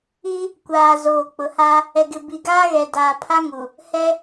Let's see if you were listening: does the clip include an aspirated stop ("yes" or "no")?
yes